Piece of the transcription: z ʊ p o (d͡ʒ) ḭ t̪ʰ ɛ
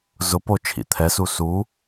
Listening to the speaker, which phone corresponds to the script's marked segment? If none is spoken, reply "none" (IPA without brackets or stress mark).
t͡ʃʰ